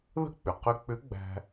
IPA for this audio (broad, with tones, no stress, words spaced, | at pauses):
ðə̤˥k͡pʏ˩ qʏ˧k͡pʏ˧˥ɡ͡bæ̤˧